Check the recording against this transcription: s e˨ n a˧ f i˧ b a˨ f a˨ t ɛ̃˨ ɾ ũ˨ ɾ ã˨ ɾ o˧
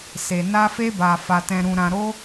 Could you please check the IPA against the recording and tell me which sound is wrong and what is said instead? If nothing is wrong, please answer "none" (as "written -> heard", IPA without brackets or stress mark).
i˧ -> e˧